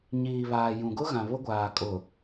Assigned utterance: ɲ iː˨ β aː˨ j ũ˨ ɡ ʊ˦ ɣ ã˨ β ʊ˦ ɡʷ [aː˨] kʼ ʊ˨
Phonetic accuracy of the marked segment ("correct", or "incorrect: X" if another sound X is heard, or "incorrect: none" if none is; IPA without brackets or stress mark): correct